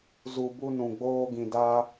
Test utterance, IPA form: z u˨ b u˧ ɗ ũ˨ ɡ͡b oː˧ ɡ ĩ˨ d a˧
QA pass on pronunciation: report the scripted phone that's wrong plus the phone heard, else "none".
ɗ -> n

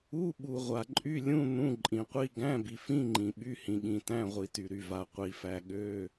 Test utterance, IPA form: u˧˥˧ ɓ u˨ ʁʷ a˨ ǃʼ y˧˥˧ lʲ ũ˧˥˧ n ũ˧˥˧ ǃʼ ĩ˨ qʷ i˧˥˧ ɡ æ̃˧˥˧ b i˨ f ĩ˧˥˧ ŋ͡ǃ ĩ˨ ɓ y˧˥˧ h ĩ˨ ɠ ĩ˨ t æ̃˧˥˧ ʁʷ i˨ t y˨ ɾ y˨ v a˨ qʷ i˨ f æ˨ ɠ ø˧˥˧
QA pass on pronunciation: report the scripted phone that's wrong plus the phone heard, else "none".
none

